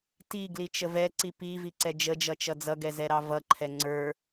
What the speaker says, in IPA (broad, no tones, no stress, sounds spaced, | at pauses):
t i ɡ l i t͡ʃ ə v ɛ ǀ i p i v i ǀ ɛ d͡ʒ ə d͡ʒ ʌ t͡ʃ ʌ d͡z ʌ ɡ ɛ z ɛ ɾ ɑ v ʌ ǃʰ ɛ ŋ͡ǀ ə˞